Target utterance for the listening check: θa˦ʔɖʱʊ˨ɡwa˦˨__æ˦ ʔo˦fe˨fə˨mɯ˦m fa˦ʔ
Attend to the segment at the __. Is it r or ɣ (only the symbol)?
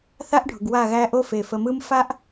ɣ